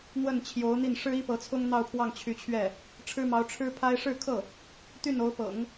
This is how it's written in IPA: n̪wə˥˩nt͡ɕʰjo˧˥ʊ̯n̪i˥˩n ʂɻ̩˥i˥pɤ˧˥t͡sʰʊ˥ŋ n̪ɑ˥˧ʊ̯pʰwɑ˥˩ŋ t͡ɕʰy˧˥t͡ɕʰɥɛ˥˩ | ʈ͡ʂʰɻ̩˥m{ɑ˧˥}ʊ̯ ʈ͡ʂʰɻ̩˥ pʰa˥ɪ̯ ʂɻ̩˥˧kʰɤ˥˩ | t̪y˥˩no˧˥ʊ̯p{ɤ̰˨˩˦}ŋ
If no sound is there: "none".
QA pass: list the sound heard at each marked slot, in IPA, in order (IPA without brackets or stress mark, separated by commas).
ɑ˧˥, ɤ̰˨˩˦